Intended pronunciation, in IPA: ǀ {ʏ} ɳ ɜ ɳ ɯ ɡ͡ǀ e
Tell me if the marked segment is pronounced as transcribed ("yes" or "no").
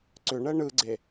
yes